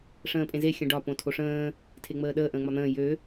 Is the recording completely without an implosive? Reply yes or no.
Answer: no